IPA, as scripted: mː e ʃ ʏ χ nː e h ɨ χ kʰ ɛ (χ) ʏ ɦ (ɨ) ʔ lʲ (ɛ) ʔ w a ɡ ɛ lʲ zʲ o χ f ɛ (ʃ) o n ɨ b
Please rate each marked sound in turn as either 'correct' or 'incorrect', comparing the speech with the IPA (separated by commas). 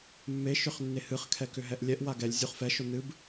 incorrect, incorrect, correct, correct